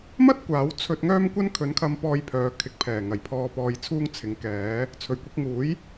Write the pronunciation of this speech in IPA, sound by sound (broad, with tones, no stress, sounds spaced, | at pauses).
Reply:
m ɐ˥ t̚ kʷ aː˨˥ w t͡sʰ ɵ˧ t̚ ŋ œː˥ m kʷ ɐ˥ n kʰ ɵ˨˧ n kʰ ɐ˧ m p ɔː˧ j pʰ œː˨ kʰ ɪ˨˥ k̚ pʰ ɛː˨˩ ŋ ɐ˨˩ j pʰ ɔː˧ p ɔː˧ j t͡sʰ uː˥ ŋ t͡sʰ ɪ˨˥ ŋ k ɛː˨˥ | t͡sʰ ɵ˨˩ ɥ kʷ ɪ˧ k̚ ŋ uː˨˥ j